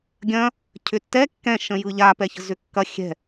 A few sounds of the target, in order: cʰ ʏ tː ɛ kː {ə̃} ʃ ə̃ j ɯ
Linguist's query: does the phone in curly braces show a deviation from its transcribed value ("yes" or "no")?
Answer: yes